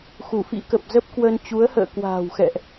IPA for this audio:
x u˧˩ f ḭ˧˥ k ə˨˩ p̚ z ə˦˥ p̚ k w ə˧ n t͡ɕ u˨˦ ə̯ h ə̰ː˧˨ k w a̤ː˨˩ w x ɛ̰˧˨ ʔ

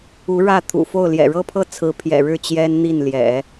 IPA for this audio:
u˧˥ ɻ ä˥˩ t̪ʰ ṵ˨˩ f o˥˩ ʊ̯ l j ɛ̰˨˩ ɻ ɤ˥ pʰ ɤ˥ t͡sʰ ɹ̩˧˥ pʰ j ɛ̰˨˩ ɻ ɻ̩˥˩ t͡ɕ j ɛ˥ n n̪ i˥˩ n l j ɛ̰˨˩˦

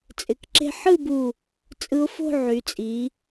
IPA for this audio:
t͡sʼ ɪ˩˧ k ǁ e̤˧ ħ ɯ˥˧ b u˧˩ | t͡sʼ ɯ˧ ʊ̯ f o̤˥˧ ʕ y˩˧ t͡sʼ i˩˧

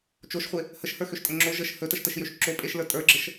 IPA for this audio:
t͡ʃ o ʃ χʷ e | h ə ʃ h ə˞ x ø ʃ tʼ ə ŋ͡ǁ o ʒ ə ʃ h ɵ t ə ʃ t ə ʃ j ø ʃ ǁ o pʼ e ʃ l ə˞ tʼ ə˞ ɡ͡ǁ ə ʃ

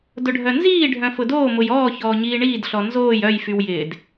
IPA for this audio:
d ʊ ɖʱ œ n z iː ɖʱ œ̃ f ʊ d oː m ʊ j ɔː ç ɔː ɲ iː ɳ iː d ɬ ɔ n z oː j œ j f y w j ɪː d

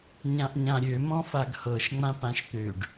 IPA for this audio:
ɲ ã ʔ ɲ ã ɾʲ ø m ɔ̃ f a ɡ h ɤ ʃ ŋ͡m ã p ã ʃ t̪ ø ɖ

